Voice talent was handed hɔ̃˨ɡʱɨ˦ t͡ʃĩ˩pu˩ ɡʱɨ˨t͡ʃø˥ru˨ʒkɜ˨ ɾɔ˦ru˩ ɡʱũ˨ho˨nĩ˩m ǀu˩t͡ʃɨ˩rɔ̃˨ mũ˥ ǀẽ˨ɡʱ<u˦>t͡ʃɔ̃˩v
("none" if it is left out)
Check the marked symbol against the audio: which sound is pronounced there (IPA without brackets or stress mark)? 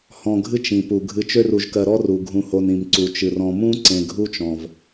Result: u˦